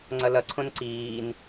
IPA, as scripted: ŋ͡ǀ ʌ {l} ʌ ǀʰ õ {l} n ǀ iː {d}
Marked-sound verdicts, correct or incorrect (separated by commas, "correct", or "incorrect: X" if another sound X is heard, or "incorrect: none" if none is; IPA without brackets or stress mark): correct, incorrect: none, incorrect: n